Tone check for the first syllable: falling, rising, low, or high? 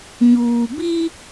low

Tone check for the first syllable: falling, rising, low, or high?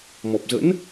low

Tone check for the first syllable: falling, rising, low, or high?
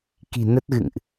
low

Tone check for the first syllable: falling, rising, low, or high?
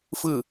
falling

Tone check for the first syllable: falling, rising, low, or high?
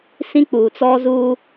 high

